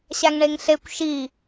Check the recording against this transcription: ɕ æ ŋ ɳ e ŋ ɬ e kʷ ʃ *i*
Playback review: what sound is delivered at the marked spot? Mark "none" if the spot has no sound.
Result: i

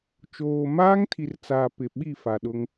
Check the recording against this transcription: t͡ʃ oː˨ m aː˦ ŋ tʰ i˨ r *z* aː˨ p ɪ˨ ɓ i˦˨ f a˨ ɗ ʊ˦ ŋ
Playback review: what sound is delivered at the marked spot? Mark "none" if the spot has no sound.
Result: t͡s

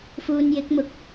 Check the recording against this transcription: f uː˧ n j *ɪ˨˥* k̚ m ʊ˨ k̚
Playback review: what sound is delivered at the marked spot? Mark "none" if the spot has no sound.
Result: ɪ˨˥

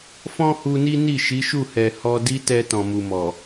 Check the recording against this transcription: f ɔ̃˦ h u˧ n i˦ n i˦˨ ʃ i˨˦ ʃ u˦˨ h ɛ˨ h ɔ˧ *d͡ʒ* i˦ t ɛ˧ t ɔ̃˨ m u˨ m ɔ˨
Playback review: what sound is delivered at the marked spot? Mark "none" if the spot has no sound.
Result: d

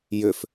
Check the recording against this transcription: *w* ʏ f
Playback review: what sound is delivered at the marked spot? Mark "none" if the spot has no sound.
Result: j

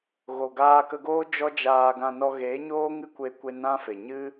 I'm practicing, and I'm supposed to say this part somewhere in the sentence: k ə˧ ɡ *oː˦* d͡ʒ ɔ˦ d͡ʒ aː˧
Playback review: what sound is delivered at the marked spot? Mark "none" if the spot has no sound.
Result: oː˦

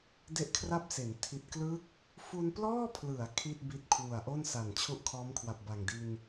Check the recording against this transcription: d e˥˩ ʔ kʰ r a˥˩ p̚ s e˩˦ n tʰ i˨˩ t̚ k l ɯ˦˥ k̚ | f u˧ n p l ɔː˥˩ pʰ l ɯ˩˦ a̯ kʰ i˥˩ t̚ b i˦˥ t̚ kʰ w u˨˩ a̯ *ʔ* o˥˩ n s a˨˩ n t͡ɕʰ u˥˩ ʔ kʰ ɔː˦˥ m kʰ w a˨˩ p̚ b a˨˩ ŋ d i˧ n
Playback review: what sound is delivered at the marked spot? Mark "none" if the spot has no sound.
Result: ʔ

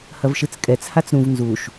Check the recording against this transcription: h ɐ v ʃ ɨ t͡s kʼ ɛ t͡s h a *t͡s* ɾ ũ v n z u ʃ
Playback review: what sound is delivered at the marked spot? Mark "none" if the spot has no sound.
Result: t͡s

